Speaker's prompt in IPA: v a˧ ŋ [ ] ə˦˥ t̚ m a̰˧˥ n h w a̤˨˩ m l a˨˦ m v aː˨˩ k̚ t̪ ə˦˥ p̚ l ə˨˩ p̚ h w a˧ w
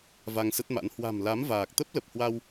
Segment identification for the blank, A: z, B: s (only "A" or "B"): B